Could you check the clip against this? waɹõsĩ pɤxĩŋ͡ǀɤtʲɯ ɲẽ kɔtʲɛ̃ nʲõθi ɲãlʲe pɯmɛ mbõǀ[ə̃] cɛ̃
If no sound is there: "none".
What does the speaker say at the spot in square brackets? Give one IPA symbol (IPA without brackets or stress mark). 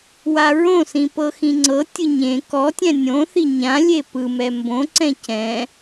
ɛ̃